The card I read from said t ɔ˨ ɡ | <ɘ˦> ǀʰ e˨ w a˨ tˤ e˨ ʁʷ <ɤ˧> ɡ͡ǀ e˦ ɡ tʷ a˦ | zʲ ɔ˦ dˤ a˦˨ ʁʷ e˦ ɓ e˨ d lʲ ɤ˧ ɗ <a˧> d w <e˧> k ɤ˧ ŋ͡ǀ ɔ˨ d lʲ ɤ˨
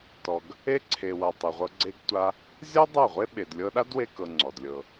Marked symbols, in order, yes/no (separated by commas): no, yes, no, yes